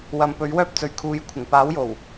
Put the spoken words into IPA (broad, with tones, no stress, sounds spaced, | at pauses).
w ɐ˨˧ m p ɵ˨˥ ɥ w œː˥ p̚ t͡s ɵ˨˧ ɥ kʰ uː˨˧ j kʷʰ ɪ˨˩ ŋ p aː˨˥ w j o˨˩ w